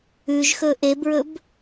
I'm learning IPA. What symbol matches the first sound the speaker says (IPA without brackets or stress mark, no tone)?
ʉ